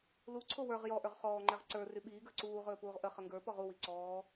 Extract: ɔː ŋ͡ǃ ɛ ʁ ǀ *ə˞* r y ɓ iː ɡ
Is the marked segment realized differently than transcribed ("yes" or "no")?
no